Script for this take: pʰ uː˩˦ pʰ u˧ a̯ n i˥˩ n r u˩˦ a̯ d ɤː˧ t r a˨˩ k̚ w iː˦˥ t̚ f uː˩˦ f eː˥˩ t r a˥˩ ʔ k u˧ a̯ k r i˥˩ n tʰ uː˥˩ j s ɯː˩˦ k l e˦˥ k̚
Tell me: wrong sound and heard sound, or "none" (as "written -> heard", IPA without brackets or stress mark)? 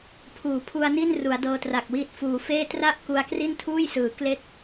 none